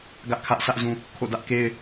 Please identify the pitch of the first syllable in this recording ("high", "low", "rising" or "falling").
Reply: high